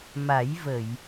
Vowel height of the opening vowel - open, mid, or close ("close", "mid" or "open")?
open